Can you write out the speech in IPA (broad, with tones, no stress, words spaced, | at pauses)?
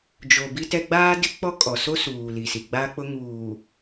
d͡ʒo˨bi˦tɛ˦ ɡ͡baː˦dɪ˦k͡pɔ˦ kʼɔ˨ so˦suː˨ li˨si˨ ɡ͡ba˦k͡pʊ˦ ŋuː˨